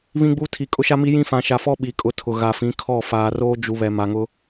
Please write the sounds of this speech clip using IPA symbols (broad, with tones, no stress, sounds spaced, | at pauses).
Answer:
β ĩ˦ ɡ͡b u˦ tʰ i˨ kʼ ʊ˦ ʃ a˦ m i˦ j ĩ˦ f ã˨ ʃ a˨ f ɔ˦ ɓ i˨ kʼ ʊ˦ tʰ ʊ˨ ɣ a˨ f ĩ˨˦ kʰ ɔ˦˨ f aː˨ r oː˦ d͡ʒ u˨ β ɛ˨ m a˨ ŋ ʊ˦